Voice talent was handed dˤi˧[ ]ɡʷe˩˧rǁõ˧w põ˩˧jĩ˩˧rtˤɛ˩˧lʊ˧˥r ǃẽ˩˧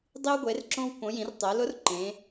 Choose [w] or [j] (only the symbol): w